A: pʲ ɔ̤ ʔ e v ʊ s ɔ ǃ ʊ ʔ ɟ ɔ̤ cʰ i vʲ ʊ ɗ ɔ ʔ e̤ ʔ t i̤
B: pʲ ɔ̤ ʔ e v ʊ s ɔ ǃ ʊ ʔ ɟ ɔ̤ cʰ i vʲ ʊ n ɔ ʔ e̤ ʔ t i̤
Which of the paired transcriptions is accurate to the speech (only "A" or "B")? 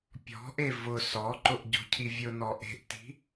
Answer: B